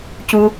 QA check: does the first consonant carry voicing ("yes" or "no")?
no